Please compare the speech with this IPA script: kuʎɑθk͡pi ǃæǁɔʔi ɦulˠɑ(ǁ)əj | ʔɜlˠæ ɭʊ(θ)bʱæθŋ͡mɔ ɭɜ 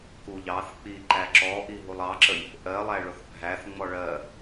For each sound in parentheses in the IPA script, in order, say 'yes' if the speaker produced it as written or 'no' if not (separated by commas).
yes, yes